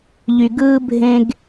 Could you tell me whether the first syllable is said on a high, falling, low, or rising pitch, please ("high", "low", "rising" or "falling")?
low